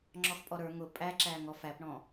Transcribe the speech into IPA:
ŋ͡ǁɔxpʼɔɾə˞ ŋʊ pʼæǁæːŋ ɔfæpɳɔ̃

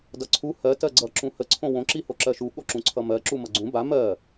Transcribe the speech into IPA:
dʌǀʰu hɜ tɜɡ͡ǀʌ ǁũhə ǀʰõwõ ǁihoǁɜʃu ɠoǁũǀʰʌmɜ ǁumʌɡ͡ǀũ ba mɜ

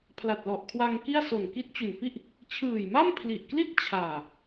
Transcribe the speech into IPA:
pʰla˨˩t̚lɔ˨˩ʔkʰwa˧ŋ ki˥˩a̯so˨˩n ki˦˥t̚ t͡ɕu˨˩nfi˥˩ʔ | t͡ɕʰɯː˨˩jma˥˩mpʰli˨˩ʔkli˥˩t̚ t͡ɕʰaː˨˩

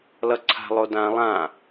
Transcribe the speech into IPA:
lʌǀʰa̤lˠo dã lˠã

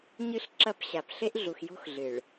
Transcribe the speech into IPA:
ɲɨ˦˨ɬ ǁɐ˦˨pɕa˨p ɬe˦ʔɮu˨xjo̤˦x ɮɨ˨ɭ

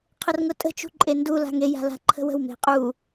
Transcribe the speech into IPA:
qʰərŋʊtʼə̤ t͡ʃṳǃʼendu la̤ŋe ja̤la̤ǃʰə̤wə̤w me̤qʼu

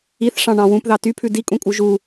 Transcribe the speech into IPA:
iθʂɑ̃ɳɑ̃ wũpðɑ typʰʉ dikʼũkʼu ʒu

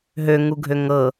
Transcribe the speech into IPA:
ɦøŋuɡʱø ŋɤ

